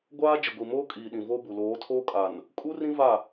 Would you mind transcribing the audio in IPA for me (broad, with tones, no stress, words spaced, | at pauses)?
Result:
ɡʷaː˦ d͡ʒɪ˨ɡʷi˨moː˦ kʼiː˨ɗĩ˨vo˦bu˨ loː˨˦tʰoː˦kʼa˨n | kʼu˦rĩ˦ va˦˨